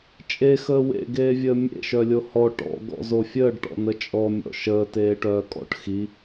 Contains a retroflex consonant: yes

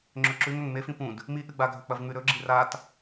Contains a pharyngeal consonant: no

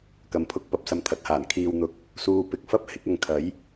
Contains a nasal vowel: no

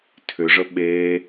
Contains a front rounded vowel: yes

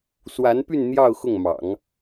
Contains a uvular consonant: no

